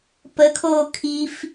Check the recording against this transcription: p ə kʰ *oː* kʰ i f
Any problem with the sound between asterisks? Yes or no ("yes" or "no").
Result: no